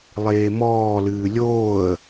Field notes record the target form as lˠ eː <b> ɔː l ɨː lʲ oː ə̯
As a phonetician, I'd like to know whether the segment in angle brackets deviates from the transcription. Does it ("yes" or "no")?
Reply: yes